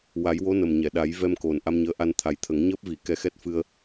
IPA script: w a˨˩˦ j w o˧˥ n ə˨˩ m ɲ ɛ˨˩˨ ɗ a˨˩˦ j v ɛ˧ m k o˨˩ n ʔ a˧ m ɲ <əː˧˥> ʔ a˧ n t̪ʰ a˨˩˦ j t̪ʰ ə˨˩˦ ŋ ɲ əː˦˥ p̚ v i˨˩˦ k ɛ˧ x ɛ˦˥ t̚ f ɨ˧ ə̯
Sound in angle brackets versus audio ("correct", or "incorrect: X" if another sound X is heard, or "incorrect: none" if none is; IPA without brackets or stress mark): correct